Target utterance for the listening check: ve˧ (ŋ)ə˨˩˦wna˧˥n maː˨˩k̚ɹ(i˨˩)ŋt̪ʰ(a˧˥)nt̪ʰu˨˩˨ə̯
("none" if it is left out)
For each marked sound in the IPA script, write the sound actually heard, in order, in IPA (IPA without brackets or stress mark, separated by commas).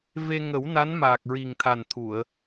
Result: ŋ, i˨˩, a˨˩